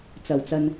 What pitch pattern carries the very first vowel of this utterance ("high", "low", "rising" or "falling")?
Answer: low